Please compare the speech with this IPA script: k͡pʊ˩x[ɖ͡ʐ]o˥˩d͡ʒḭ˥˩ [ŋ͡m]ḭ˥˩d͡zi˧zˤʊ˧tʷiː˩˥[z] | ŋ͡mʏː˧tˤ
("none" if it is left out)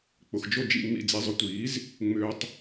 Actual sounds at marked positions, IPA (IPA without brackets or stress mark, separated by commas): d͡ʒ, ŋ͡m, z